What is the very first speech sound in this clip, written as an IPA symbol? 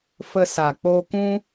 f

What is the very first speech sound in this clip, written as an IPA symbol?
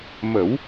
m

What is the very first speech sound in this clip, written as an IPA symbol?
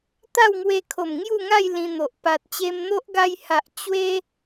t̪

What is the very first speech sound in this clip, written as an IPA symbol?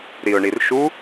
ɾ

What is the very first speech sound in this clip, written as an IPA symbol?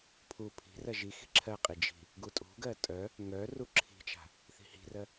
pʰ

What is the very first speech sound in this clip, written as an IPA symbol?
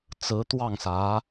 t͡s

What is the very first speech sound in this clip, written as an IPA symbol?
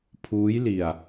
pʰ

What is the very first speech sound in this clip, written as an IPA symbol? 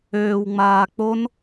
øː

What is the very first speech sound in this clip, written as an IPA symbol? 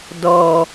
d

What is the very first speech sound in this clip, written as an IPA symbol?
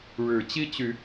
ɻ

